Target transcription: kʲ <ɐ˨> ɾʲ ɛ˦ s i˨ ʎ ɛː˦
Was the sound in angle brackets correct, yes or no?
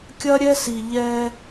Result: no